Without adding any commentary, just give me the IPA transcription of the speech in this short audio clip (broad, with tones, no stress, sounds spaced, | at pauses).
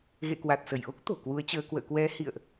ɣ ḛ˧˨ k w a˨˩ t̚ s ə˧˩ j ʔ o˦˥ k̚ t̪ o̤˨˩ k w u˨˦ ə̯ t͡ɕ əː˧ k w ə̰ː˧˨ k w ɛ˨˦ h ḭ˧˨ ə̯ ʔ